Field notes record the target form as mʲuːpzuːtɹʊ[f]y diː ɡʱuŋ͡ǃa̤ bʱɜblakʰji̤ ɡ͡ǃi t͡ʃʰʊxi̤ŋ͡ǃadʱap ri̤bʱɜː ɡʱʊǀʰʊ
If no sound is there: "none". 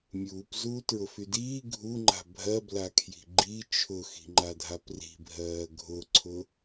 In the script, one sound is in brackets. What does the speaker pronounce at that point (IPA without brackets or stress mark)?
f